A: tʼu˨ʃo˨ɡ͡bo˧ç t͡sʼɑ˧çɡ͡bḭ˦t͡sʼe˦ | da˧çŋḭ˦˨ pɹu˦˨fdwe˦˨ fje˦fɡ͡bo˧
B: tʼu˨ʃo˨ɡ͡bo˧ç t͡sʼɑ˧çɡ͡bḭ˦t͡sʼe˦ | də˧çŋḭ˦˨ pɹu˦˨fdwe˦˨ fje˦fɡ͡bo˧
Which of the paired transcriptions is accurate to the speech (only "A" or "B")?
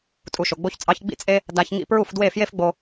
A